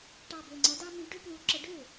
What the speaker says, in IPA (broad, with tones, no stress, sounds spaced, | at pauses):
ʈ ɑ˨˩ b ø˨˩ ŋ͡ǀ ɐ˨˦ d ɑ˦ m i˨˦ ɖ ø˦ p l u˨˦ ǁ ə˨˦ ɖ ø˥˩